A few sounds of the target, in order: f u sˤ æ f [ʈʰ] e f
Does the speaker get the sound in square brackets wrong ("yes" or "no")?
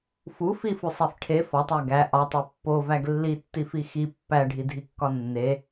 no